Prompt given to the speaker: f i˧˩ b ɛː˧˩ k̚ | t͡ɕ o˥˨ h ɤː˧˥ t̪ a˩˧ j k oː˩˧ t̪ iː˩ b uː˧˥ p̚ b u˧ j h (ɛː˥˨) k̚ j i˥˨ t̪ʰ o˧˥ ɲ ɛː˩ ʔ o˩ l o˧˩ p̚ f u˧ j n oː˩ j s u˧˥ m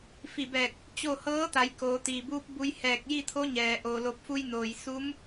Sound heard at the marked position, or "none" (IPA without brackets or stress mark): ɛː˧˩